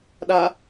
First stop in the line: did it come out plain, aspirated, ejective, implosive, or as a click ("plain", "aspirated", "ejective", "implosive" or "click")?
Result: implosive